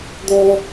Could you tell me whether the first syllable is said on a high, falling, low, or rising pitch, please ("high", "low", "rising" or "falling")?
high